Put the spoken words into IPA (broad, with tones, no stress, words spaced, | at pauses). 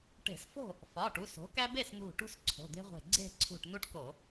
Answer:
ʈe̤˧˩˧sfo̤˥˨ | fɒ˩˧˩ ʈu˩˧˩so̤˩˥kæ˦ be˥˨snṳ˧˩ʈṳ˦s ǀʰo̤˩˧˩d̪e̤˦ʁʷe̤˧˩ ɡ͡ǀe̤˥˨ǀʰṳ˧˩ʈ nu˦ʈko˧˩˧